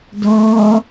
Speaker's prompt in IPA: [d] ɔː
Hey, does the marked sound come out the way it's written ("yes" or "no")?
yes